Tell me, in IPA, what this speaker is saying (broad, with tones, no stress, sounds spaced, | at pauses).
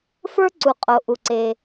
f ə˞˧ ǀ u˩ qʼ o˩ ʔ u˩ ǀ e˩